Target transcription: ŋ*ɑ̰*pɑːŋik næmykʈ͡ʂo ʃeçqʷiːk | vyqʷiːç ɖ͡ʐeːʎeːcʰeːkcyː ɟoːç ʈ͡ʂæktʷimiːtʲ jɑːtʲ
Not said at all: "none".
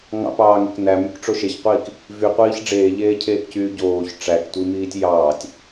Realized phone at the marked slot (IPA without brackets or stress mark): ɑ̰